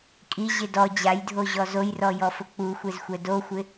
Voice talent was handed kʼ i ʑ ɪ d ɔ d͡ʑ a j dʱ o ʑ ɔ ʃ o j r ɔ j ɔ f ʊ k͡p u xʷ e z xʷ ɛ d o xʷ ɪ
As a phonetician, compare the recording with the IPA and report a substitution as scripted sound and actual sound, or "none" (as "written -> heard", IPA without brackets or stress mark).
ʃ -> z